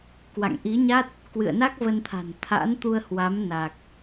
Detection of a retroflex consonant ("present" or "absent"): absent